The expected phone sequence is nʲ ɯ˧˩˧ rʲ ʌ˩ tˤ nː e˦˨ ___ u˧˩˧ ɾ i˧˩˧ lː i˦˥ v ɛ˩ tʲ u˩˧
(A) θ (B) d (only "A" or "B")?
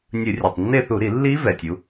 A